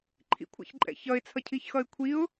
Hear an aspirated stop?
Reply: yes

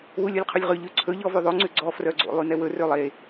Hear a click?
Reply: yes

